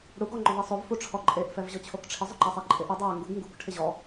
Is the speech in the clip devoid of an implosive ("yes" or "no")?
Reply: yes